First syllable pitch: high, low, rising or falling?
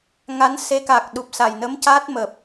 rising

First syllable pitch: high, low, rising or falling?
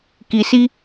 low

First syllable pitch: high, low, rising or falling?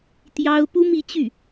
high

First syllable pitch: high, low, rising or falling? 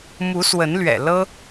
rising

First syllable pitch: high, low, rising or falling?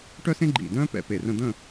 high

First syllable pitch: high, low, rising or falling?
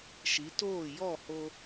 rising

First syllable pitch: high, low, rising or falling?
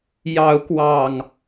rising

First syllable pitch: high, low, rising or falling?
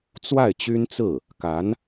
falling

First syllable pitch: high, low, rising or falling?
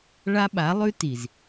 high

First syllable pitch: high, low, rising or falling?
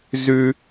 high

